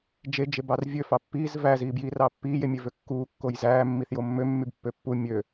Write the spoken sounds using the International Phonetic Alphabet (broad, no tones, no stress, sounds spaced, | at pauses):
d͡ʒ e d͡ʒ e b ɑ r vʲ ø f ɑ pː iː z v æ z iː b j iː r ɑ pː iː j e mʲ e v ø kː uː kː o j z æː mː i θ j o mː ø mː y b pː ø pː u mʲ ø